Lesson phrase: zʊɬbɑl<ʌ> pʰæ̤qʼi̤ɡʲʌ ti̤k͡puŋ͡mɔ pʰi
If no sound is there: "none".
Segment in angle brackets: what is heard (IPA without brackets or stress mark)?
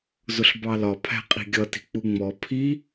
ɒ